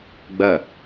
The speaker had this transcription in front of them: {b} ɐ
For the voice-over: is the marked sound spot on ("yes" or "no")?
no